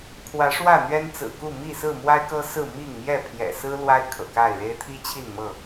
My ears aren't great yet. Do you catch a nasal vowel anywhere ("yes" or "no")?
no